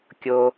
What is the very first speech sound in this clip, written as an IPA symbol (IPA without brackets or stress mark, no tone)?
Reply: kʲ